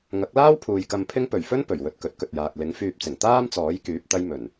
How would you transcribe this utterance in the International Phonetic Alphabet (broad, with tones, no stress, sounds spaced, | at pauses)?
ŋ ɐ˨˥ k̚ l aː˥ w pʰ uː˨ j k ɐ˧ m pʰ ɪ˥ ŋ p ɵ˨˩ ɥ f ɵ˥ n p ɵ˨˩ ɥ w ɵ˧ t̚ k ɵ˨˥ t̚ k ɵ˨ t̚ j aː˨ k̚ l ɪ˨˥ ŋ f yː˧ p̚ t͡s ɪ˨˩ ŋ t̪ aː˥ m t͡s ɔː˨˥ j k yː˨˥ p̚ t̪ ɐ˧ j m ɵ˨˩ n